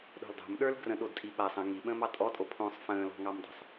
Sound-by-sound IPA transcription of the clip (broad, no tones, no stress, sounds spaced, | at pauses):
ɗ o̤ l dˤ o̤ m ɗ ə˞ l ɡ r ə̃ ɗ o d tʼ i ɓ a sˤ ə̃ ŋ i ɓ ə̃ː m ɑ tʼ ɔ tʼ o pʰ õ sˤ f ə̃ː l ɔ̤ ŋ ɑ m dˤ ə̤ sˤ